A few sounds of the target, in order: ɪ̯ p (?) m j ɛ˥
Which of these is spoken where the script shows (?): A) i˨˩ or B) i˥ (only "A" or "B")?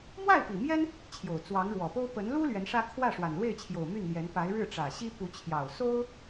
A